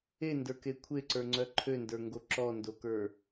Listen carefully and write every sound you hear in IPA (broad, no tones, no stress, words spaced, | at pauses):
endə˞ke kʷʰeǀə˞ŋ͡ǀœ ǃʰøndə˞ŋɡo ǁɔndokə˞